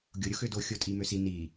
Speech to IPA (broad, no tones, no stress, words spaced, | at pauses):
ɡʲo ɾʲoxødo xʲotʼimøsi ni